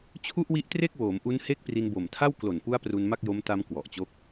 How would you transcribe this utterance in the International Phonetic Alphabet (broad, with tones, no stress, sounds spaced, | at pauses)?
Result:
t͡ɕʰ u˥˩ ʔ w i˦˥ ʔ t r e˥˩ k̚ w oː˩˦ m ʔ u˦˥ n h e˥˩ k̚ p r i˧ n b o˨˩ m tʰ a˥˩ w k l o˨˩ n p u˦˥ a̯ p r u˧ n m a˥˩ k̚ j o˦˥ m t a˧ m k w ɔ˨˩ ʔ t͡ɕ o˦˥ k̚